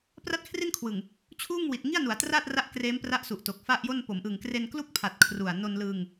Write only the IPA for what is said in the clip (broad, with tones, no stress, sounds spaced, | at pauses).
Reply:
p r a˥˩ t̚ kʰ r i˥˩ n kʰ w ɯ˨˩ ŋ | t͡ɕʰ uː˥˩ ŋ w i˨˩ t̚ ŋ i˥˩ a̯ n u˩˦ a̯ t r aː˥˩ t̚ r a˦˥ ʔ k r eː˦˥ m p r a˦˥ ʔ s u˨˩ ʔ t o˨˩ k̚ f a˥˩ ʔ j o˥˩ n p o˩˦ m ʔ ɯ˨˩ ŋ k r e˧ n k l u˥˩ k̚ pʰ a˨˩ t̚ kʰ r u˨˩ a̯ n o˧ n l ɯ˧ ŋ